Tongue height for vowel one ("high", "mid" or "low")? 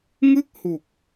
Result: high